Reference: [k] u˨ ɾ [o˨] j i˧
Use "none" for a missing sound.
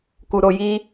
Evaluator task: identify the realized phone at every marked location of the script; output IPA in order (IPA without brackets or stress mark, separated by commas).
k, o˨